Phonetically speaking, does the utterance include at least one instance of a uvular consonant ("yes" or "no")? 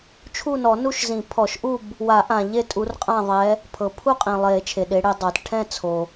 yes